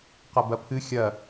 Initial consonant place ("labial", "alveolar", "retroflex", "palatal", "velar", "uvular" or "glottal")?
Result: uvular